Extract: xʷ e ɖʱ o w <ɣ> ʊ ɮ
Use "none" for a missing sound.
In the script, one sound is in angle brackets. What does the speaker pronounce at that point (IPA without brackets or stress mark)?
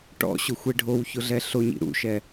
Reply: ç